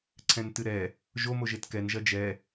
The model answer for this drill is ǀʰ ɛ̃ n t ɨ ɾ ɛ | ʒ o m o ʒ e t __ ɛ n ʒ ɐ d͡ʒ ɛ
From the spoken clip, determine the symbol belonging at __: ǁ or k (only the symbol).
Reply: k